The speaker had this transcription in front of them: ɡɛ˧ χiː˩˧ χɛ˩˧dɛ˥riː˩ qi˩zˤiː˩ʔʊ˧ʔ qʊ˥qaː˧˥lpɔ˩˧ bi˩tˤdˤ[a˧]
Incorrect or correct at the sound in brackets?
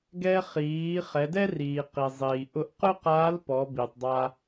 correct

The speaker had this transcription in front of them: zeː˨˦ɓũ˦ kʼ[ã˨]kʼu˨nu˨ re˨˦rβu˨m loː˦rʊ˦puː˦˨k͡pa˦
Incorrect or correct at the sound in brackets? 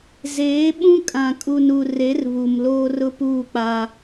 correct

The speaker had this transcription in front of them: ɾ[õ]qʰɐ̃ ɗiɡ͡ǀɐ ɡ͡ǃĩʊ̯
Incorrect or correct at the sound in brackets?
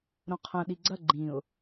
correct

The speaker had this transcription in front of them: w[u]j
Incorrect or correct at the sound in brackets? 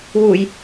correct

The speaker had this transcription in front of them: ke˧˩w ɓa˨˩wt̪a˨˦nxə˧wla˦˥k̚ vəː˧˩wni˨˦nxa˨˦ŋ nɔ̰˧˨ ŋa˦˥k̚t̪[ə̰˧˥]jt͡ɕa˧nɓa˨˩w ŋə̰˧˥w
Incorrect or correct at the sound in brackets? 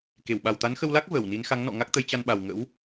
incorrect: ə˨˦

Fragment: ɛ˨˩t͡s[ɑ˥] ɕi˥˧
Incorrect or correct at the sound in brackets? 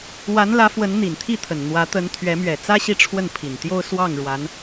incorrect: ä˥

